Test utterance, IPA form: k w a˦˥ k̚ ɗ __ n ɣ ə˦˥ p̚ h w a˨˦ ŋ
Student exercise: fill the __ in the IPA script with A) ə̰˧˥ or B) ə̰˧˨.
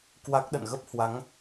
B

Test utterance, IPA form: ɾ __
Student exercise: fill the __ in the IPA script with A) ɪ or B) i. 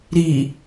B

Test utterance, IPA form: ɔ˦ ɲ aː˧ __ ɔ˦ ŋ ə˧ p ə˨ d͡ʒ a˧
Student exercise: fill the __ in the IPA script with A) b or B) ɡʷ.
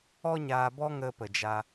A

